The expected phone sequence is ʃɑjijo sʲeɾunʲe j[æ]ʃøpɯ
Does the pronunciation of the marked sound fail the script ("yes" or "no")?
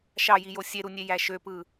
no